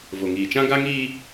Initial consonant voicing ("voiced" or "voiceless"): voiced